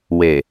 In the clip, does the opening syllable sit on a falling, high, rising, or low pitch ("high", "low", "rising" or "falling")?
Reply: low